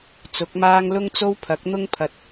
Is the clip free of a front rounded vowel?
yes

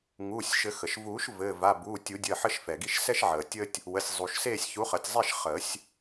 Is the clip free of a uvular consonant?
no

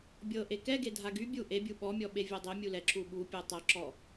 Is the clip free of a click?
no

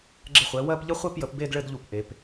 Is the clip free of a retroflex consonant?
no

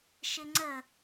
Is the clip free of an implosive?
yes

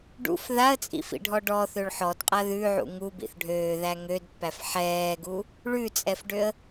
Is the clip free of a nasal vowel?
yes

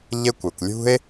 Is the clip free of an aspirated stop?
yes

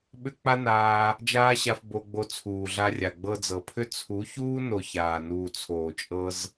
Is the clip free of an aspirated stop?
no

